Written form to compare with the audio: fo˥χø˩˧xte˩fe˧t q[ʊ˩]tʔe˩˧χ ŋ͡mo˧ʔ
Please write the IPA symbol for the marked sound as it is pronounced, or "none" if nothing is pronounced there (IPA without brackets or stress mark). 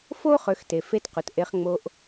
ʊ˩